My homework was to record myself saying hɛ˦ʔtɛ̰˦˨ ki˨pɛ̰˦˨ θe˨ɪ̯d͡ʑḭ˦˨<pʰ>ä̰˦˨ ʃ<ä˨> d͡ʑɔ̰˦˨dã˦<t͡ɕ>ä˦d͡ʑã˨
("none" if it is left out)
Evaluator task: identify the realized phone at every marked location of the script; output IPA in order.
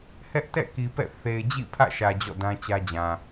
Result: pʰ, ä˨, t͡ɕ

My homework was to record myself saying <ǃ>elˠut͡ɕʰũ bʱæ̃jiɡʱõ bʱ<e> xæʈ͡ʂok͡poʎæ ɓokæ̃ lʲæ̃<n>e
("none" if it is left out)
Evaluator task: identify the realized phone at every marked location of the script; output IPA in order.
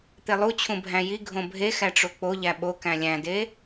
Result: t̪, e, d

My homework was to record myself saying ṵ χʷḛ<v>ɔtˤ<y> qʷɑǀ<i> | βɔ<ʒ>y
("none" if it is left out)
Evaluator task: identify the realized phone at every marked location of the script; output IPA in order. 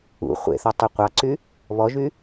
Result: θ, ø, y, ʒ

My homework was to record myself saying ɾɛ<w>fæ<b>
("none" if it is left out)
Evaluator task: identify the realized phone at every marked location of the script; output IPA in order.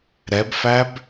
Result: b, b

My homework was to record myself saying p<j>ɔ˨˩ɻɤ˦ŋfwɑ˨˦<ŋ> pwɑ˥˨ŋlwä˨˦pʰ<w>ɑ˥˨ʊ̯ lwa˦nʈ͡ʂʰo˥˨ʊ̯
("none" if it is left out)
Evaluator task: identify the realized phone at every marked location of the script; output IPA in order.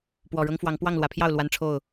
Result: w, ŋ, j

